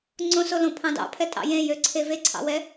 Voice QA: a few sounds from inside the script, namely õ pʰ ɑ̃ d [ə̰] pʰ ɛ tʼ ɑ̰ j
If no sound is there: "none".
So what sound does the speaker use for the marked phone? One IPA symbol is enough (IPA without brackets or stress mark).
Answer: ɑ̰